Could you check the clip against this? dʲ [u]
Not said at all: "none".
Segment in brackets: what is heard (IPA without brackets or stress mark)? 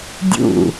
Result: ṵ